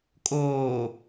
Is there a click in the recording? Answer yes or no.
no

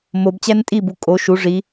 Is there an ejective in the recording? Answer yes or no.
yes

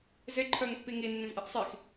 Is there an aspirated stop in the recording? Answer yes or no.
yes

